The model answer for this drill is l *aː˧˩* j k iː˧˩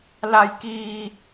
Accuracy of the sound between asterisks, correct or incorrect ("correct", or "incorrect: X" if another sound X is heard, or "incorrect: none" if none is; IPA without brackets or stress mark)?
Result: incorrect: a˧˩